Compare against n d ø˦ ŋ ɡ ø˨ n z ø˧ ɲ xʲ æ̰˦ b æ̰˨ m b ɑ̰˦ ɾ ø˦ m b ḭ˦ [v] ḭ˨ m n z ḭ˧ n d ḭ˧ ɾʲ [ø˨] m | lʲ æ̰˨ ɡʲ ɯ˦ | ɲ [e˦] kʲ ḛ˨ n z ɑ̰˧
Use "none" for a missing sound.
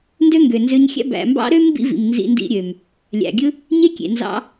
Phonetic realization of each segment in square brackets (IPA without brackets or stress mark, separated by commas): v, ø˨, e˦